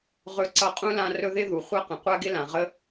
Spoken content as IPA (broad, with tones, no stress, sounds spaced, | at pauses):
ʁ ɵ˦ ǀ ʌ˦ qʼ ũ˥ l ã˦ r ɵ˦ ð ɪ˥ ð u˩ χʷ a˦ q ə̃˩ qʷ a˦ ɡ ɪ˦ l ã˩ ʁ ə˥